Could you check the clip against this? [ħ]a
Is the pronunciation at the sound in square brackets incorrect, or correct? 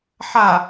correct